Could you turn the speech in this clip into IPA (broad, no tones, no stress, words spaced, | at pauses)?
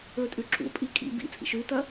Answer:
ɵtʼʉ ǁṵpʼi kʼḭ bḭt͡sʼḭʃ ʉtɐ